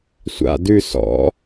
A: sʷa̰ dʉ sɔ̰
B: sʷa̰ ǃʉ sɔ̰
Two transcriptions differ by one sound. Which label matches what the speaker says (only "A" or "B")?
A